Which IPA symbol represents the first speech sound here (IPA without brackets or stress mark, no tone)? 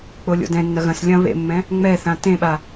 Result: k͡p